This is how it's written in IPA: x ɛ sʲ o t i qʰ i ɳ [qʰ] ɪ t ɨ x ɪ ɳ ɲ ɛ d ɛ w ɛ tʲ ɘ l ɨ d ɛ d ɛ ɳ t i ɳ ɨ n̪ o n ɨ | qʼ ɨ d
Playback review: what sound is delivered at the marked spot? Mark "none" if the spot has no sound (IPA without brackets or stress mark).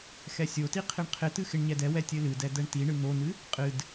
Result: qʰ